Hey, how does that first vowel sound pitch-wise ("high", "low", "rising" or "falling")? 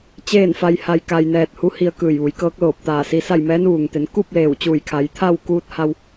falling